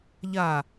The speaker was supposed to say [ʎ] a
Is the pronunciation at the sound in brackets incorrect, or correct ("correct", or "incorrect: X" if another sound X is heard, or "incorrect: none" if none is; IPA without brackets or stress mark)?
correct